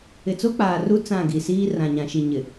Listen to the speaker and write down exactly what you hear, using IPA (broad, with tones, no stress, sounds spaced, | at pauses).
ɪ˨ t͡s o˦ k͡p aː˨ r u˦ t͡s ã˦˨ ɡ i˨ s iː˦ r ã˨ ɲ ã˨ ʃ i˨ ɲ ɪ˨